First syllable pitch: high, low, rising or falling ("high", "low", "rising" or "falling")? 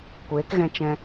rising